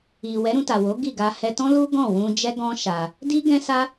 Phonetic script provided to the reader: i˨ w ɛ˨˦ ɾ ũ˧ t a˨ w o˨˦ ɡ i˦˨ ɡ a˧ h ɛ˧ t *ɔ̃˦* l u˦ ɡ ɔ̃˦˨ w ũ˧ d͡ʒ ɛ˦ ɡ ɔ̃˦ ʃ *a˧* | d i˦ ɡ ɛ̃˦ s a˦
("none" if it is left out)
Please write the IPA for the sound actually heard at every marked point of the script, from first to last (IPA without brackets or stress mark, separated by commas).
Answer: ɔ̃˦, a˧